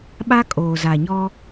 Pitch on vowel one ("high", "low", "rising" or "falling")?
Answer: high